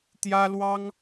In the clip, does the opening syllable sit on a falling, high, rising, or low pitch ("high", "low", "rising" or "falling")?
high